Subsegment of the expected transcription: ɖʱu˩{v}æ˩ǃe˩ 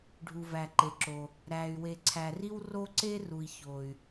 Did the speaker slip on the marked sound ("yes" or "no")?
no